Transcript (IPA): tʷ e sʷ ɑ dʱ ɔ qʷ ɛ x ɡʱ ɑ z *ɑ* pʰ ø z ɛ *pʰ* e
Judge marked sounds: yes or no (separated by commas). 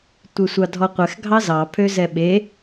yes, no